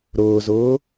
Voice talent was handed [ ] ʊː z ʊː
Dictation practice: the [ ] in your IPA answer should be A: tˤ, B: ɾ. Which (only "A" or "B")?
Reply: B